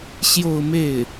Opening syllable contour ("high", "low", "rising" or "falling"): falling